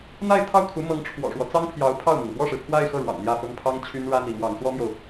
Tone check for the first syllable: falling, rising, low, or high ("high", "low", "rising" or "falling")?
falling